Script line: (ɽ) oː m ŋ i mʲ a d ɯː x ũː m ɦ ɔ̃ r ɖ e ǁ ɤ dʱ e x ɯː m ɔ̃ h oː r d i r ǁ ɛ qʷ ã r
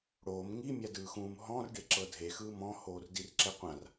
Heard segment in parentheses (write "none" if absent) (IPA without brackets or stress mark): ɽ